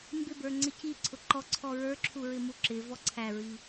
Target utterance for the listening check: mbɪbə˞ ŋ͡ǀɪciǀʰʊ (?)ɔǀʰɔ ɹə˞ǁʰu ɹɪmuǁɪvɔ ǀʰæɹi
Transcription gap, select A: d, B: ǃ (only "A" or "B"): B